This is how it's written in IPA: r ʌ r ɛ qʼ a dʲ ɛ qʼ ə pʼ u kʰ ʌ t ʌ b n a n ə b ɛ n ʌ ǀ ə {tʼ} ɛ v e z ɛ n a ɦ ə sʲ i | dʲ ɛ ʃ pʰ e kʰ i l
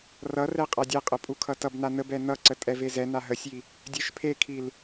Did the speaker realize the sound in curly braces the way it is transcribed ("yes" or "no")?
yes